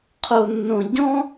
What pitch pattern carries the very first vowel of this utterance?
low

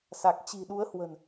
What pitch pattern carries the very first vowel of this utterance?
low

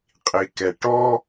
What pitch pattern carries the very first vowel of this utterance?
low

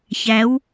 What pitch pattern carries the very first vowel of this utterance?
rising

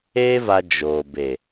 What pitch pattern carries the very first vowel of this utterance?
high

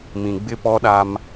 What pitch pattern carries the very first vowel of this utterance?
low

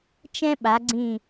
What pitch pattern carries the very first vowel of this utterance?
high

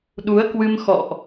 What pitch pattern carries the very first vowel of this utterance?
rising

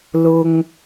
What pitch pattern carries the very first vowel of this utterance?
high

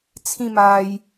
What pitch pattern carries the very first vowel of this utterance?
falling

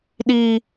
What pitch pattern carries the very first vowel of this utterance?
high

